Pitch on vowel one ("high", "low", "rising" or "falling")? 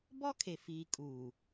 high